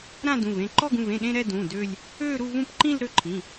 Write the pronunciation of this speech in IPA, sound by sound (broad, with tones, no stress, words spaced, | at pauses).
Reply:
ɾã˥˧dũ˩˧˩v ẽ˩˧˩ǃɔ˥˧ ɡũ˩˧˩vẽ˩˧˩ ɗẽ˥˧ ɾɛ˥˧dũ˩˧˩ dø˥˧lʲ | ø˥˧ɾu˥˧ vũ˥˧pǃĩ˥˧l ɾø˥˧ǃʰĩ˩˧˩